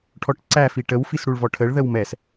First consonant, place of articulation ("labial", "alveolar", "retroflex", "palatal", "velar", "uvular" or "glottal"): retroflex